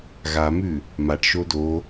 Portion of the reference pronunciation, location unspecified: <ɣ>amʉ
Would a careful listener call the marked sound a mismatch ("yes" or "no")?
no